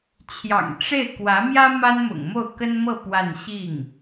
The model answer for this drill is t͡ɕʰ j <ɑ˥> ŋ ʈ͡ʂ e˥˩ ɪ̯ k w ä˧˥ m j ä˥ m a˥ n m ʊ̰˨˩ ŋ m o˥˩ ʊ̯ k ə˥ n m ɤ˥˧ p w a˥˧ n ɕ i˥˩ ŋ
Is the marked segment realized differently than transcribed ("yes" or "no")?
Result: yes